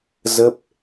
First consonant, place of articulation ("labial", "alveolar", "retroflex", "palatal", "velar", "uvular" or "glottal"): alveolar